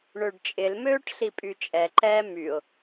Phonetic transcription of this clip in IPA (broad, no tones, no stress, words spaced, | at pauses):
ɳøɖt͡ʃʼɪlmøːʈ ɬipʼyt͡ʃʼɛǃɛː myʊ̯